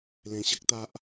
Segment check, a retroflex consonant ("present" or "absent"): absent